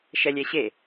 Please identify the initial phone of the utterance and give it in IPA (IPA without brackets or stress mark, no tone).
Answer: ʃ